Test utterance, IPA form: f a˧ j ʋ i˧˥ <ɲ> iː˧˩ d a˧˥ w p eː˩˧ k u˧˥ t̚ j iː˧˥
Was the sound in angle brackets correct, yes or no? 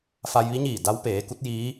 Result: yes